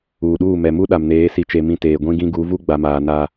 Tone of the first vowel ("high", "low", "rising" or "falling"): low